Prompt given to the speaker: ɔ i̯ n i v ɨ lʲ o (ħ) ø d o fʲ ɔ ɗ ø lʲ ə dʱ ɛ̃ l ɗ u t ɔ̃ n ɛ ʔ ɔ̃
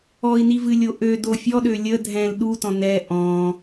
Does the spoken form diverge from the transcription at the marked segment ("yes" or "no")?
yes